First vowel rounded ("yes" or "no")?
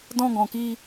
yes